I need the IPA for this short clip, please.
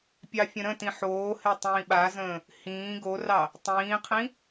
pʲ ɑ fʲ ə̃ ɾ ə̃ t ĩ ħ oː h e tˤ ĩː ɓ a z ə̃ː | h ĩː ɡ o r ɑ | tˤ ĩː qʰ ĩ

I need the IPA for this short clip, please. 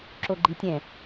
ǁ o ɡ͡ǃ i tʲ ɛ̃

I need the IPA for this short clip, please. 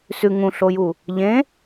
s ʉ ŋ ũ ɬ o j u | ʎ ẽ

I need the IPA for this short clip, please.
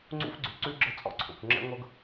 ŋ͡ǀ ṵ˦ f ɡ͡ǀ ʉ˨ ǀ ʉ˦ ɡ͡ǁ ə˦ t͡sʼ ɔ̰˦ ǀʰ o̰˨ kʷ ŋ͡ǁ ɛ̰˦ ŋʷ ɤ˦ ɡ

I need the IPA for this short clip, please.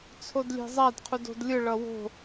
t͡sʰ o d lʲ e̤ zˤ a d qʰ u d o̤ d lʲ ɯ ɭ ʌ w o̤

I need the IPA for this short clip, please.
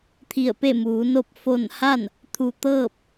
t̪ʰ i˧˩ ə̯ p e˥˨ m uː˩˧ n o˥˨ p̚ f o˥˨ n h a˥˨ n | t̪ʰ u˧˩ t̪ ɤː˥˨ p̚

